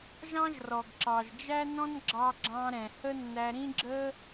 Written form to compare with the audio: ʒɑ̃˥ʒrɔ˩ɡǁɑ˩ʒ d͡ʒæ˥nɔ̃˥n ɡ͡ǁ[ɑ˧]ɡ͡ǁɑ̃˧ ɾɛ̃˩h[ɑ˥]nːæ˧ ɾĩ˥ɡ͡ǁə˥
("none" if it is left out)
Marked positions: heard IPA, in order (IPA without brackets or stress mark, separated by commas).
ɑ˧, ə˥